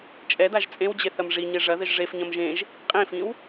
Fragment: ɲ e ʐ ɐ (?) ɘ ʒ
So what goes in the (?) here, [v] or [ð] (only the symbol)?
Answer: ð